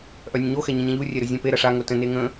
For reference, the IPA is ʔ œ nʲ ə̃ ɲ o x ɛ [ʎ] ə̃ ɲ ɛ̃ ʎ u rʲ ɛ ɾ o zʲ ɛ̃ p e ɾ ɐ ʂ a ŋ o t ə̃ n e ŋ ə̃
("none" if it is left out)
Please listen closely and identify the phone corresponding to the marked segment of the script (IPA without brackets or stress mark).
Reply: ɲ